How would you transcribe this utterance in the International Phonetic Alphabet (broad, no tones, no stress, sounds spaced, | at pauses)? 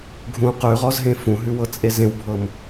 ɡʱ ũ q ʉ ʁ ɔ z ɦ ẽ f ũ ɦ ʉ w ɤ t͡sʼ e z ẽ w bʱ ɤ m